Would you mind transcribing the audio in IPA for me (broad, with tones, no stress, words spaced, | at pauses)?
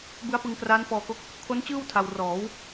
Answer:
bɯ˦˥a̯pɯ˧ŋ kraː˦˥nfɔː˧ko˦˥k̚ | kʰo˦˥nt͡ɕɯː˥˩w tʰa˧w rɔː˩˦w